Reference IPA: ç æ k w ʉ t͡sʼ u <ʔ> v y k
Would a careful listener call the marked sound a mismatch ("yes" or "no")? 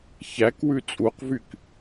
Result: yes